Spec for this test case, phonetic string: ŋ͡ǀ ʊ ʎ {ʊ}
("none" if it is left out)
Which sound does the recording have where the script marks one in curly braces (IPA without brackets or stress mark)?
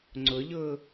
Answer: ʊ